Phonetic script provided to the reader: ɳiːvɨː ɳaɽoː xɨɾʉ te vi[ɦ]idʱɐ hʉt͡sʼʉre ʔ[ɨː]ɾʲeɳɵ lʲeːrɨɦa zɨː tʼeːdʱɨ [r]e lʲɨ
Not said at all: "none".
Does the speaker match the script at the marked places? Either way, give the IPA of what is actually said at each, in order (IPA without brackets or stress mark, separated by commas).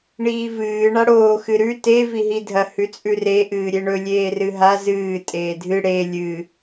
ɦ, ɨː, ɽ